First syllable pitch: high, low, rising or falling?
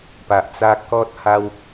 low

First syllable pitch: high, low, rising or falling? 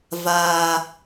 low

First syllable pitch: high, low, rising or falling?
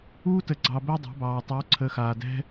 high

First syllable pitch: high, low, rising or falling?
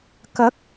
rising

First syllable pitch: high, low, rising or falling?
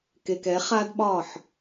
low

